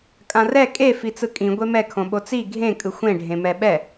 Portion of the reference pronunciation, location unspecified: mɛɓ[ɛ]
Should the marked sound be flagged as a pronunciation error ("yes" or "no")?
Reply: no